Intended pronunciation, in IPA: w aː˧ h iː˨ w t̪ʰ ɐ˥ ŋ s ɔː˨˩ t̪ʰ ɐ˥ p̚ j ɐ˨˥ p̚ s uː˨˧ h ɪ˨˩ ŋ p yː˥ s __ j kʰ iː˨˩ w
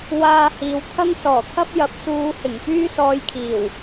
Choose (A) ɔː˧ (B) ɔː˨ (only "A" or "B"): A